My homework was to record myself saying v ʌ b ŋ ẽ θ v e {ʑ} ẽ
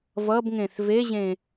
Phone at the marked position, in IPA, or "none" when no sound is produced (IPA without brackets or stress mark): ʑ